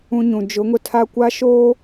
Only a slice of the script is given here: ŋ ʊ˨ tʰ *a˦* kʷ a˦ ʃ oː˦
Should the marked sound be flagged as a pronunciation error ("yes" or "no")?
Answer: no